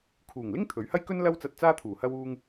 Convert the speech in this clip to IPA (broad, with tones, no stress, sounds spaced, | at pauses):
kʰ uː˨˩ ŋ l ɪ˥ ŋ t̪ʰ ɵ˨˥ ɥ h ɐ˥ j k ɵ˥ n l ɐ˧ w t͡s ɐ˨ t̚ t͡s aː˧ t̪ʰ uː˨˩ h ɐ˧ w uː˧ ŋ